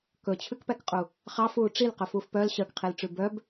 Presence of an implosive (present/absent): absent